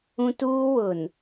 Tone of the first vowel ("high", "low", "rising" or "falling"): high